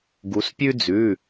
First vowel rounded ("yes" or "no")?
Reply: yes